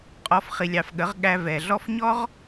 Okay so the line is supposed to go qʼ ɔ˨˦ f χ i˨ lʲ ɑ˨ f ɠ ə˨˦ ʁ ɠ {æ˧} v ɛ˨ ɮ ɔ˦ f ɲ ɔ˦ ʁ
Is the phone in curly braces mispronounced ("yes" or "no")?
no